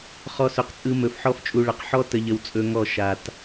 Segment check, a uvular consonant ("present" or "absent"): present